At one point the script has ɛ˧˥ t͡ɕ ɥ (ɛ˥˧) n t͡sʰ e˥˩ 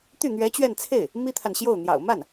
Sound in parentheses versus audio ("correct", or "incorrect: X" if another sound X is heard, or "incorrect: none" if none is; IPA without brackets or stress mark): correct